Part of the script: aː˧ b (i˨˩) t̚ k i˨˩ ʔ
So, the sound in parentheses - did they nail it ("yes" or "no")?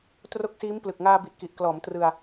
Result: yes